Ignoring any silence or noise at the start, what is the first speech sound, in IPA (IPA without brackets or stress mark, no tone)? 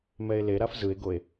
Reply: m